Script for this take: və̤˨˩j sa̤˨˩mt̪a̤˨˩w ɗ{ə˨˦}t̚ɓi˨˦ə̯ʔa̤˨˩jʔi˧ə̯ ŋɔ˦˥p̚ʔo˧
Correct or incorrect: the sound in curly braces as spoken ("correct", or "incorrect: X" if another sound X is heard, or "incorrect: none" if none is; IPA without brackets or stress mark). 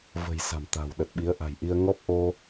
incorrect: ə˨˩